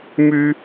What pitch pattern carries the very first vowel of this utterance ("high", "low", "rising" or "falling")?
high